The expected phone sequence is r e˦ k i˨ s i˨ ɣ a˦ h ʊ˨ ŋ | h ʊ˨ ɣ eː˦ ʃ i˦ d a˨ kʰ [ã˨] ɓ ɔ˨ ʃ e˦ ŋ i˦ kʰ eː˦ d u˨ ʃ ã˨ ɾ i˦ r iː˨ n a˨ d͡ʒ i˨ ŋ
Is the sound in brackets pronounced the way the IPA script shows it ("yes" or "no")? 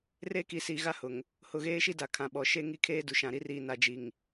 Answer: yes